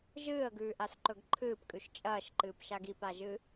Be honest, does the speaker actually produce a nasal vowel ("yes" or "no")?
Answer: no